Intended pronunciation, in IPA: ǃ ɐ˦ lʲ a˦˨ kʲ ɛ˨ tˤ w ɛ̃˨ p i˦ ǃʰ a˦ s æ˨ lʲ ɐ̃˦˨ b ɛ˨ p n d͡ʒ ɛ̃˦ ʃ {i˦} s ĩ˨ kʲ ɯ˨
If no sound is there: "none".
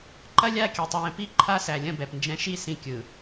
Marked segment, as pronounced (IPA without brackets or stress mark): i˦˨